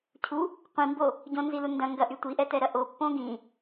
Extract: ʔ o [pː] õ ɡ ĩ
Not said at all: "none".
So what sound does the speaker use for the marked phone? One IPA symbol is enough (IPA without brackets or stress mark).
pː